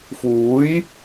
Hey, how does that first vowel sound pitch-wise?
rising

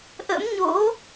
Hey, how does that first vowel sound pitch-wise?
rising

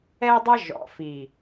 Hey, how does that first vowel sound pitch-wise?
high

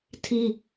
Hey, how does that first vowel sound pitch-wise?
high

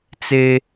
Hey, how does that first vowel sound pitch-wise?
high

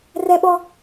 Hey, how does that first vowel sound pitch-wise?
high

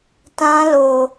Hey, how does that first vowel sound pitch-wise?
high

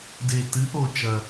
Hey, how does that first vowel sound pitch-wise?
low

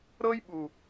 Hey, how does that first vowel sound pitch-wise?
high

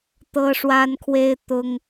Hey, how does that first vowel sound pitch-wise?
high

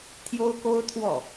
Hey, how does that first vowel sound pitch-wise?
high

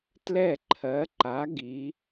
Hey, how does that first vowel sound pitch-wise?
falling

